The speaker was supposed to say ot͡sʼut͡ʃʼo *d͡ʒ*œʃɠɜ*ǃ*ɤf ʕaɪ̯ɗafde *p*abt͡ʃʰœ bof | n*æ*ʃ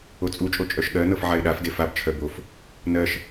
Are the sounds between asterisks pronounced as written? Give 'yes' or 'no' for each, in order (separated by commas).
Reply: no, no, no, no